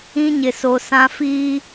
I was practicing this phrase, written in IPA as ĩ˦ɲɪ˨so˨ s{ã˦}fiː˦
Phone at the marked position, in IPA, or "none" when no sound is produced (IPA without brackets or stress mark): ã˦